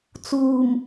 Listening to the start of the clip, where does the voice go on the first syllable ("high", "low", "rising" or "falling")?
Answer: low